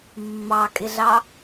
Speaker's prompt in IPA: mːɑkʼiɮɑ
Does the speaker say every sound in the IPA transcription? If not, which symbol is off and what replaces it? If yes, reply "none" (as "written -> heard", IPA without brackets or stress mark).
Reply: i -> ɪ